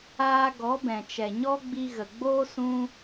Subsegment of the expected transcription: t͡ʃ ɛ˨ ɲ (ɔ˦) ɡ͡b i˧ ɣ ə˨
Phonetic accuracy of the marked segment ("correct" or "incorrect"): correct